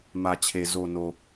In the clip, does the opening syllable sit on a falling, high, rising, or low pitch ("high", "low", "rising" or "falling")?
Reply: low